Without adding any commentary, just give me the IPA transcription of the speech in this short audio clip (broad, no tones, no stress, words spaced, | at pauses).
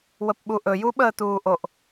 wəpɓuʔɵju ɓəːtuːʔoʔ